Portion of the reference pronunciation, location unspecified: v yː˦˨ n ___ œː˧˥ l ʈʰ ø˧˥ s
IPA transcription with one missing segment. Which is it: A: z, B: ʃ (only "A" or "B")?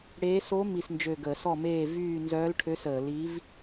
A